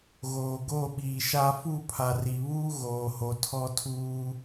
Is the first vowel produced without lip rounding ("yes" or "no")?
no